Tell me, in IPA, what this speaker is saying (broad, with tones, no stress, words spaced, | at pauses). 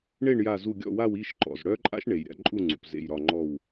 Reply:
ɳe˥˨ɳja˧˩zu˧˩ ɡʲɔ̰˥˨wa˥˨w i˥˨ʃǃɔ̰˩z ɽœ˦˥ǃʼa̰˦˥ʃ ɳe˩jɾʲa̰˥˨ ǃʼu˥˨ŋ͡ǀṵ˩p zḛ˧˩jɾɒ˧˩ŋ͡ǃɔ˧˩w